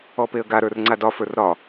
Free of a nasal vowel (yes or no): yes